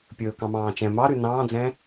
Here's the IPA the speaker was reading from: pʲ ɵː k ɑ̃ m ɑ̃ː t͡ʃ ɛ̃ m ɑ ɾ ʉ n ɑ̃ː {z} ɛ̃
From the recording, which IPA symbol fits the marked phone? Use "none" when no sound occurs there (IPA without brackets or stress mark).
d͡z